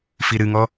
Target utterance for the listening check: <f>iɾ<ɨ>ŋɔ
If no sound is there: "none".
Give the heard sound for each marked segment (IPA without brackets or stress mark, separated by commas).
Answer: f, ɨ